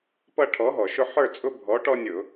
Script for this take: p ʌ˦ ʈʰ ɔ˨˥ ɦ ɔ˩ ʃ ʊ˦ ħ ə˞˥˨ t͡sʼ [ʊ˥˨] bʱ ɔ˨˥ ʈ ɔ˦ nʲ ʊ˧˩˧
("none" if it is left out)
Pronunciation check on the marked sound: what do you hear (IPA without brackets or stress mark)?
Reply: ʊ˦